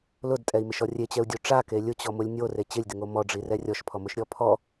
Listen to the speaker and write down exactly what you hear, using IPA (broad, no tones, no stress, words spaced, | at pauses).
lʊdtʼɛi̯mɪʃɔ rʲet͡ɕɛu̯dʲo ʈ͡ʂake lʲʊt͡ɕɔmʊlʲ nʲore t͡ɕɪlʲdɪŋo mɔɖ͡ʐirɛ rʲɔʃpʰɔmʊʃɾʲɔ pʰɔ